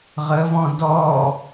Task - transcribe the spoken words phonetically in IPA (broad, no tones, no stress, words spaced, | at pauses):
ʁəvɔ̃ dɔ